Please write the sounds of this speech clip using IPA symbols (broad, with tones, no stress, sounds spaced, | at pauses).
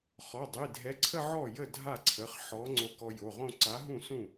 χ ɔ˩˧˩ dˤ i˩˧˩ dʱ ɛ˨˥ ǀʰ ə˥˧ ʕ ɔ˥˩ j ə˥˩ dʱ a˥˩ ǀʰ ə˩˧˩ χ ħ ɔ˨˥ ŋ͡ǀ o˧ k ɔ˧ j o˩˧˩ ʁ õ˥˧ ǀ a˨˥ ɦ ũ˥˩ s ũ˥˩